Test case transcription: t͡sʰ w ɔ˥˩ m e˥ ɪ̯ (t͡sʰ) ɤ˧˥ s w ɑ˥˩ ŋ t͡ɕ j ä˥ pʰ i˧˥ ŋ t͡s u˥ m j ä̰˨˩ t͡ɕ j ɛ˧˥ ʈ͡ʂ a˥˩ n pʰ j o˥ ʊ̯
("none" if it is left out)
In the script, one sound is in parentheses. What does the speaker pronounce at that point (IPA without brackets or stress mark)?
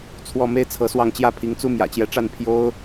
t͡sʰ